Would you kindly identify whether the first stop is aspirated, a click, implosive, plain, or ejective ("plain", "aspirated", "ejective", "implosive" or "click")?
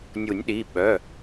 implosive